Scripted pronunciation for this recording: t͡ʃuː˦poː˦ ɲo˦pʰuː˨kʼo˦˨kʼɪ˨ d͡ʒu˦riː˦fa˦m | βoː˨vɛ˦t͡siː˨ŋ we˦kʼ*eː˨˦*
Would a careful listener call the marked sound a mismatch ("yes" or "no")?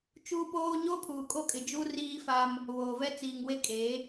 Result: no